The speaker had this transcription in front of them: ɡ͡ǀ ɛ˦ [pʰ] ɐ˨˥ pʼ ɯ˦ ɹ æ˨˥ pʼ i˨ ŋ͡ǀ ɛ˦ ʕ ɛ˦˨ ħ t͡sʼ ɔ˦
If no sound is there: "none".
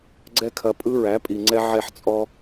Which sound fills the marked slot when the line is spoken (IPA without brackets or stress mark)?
kʰ